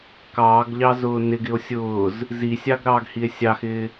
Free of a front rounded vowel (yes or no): yes